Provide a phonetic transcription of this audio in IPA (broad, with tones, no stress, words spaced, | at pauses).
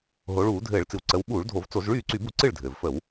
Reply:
ɦo˩˧ɭuː˧˩˧dʱɘː˧˩˧ɭ t͡sɨ˩wǀə˩˧w ɓuː˧˩˧ɭ dʱo˧˩˧vt͡so˧˩˧z ɭyː˥˩ ǀy˧˩˧bu˩˧ ǀɨ˥˩ɭdʱɘː˩vfə˧˩˧w